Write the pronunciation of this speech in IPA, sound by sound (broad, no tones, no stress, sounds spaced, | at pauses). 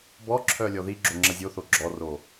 b ɔ ǁʰ œː lʲ ɔ ð i ɡ͡ǁ o ŋ͡ǁ ɐ zʲ o θ o ɡ͡ǁ ɔ r o